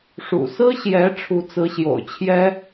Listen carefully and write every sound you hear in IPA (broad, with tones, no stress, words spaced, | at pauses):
ʂṵ˨˩sɹ̩˥ɕjɛ˧˥ ʈ͡ʂʰu˧˥t͡sɹ̩˧˥ɕjo̰˨˩ʊ̯t͡ɕʰjɛ˥